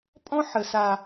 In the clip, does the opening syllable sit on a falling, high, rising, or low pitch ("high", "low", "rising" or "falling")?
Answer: high